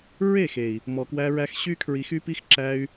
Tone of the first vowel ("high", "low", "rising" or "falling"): falling